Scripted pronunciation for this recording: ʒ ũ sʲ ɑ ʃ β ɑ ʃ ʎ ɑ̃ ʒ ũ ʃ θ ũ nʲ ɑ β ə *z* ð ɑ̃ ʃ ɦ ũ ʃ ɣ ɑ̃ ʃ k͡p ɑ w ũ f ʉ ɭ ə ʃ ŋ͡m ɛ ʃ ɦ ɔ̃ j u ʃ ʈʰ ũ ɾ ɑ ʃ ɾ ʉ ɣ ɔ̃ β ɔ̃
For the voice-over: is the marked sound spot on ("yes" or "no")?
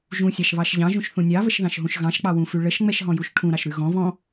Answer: no